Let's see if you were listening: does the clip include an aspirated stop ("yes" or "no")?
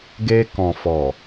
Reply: no